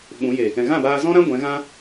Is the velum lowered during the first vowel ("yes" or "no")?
yes